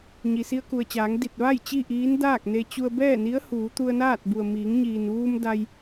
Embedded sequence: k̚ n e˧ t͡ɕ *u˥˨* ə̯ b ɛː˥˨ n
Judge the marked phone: incorrect: u˧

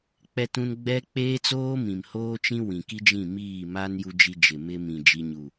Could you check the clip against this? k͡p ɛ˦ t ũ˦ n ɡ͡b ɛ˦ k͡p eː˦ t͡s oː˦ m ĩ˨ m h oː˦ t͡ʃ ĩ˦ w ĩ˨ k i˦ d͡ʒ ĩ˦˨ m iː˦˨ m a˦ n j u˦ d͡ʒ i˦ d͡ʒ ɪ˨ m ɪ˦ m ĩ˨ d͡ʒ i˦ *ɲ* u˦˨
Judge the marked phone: correct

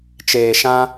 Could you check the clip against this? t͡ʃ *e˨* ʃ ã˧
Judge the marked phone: incorrect: eː˨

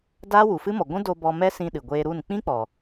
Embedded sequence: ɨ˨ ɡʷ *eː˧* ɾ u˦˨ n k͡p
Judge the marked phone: correct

